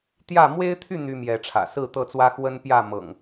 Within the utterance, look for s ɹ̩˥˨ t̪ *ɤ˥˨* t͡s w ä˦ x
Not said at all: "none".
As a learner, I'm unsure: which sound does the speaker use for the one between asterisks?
ɤ˥˨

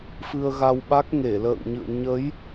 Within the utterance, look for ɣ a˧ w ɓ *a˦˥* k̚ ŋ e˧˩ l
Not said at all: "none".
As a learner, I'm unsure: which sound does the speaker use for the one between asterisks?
a˦˥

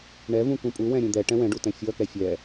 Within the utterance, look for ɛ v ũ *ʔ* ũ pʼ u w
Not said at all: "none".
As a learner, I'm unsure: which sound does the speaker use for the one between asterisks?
k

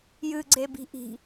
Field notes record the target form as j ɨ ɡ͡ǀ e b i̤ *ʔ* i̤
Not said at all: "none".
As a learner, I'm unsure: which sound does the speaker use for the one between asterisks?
ʔ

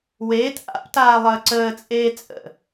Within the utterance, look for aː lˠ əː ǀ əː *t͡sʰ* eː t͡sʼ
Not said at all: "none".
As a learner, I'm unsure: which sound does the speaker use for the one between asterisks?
t͡sʼ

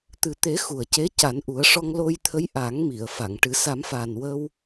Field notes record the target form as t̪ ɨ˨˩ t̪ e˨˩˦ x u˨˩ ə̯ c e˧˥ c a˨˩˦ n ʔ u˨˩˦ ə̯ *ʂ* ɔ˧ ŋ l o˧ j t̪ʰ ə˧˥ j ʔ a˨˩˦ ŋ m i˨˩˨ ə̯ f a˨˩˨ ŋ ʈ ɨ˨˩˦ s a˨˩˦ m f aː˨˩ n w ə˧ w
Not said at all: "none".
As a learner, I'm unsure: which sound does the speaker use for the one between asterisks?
ʂ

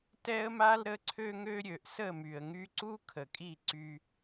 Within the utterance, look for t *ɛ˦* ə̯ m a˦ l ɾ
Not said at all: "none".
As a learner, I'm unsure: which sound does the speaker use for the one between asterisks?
ɛ˦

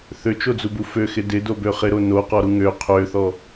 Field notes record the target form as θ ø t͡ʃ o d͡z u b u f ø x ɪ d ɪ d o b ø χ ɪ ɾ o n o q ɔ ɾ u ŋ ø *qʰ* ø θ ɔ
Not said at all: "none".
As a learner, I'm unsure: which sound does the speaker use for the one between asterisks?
qʰ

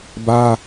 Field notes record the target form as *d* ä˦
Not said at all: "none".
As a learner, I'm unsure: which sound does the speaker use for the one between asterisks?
b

